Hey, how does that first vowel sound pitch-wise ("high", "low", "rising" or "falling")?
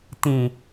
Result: low